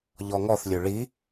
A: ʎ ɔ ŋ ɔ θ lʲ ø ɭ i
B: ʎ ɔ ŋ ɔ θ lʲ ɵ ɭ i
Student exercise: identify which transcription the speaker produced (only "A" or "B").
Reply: A